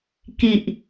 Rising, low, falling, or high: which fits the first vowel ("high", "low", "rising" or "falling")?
low